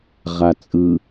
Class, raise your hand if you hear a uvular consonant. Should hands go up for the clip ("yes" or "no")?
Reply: yes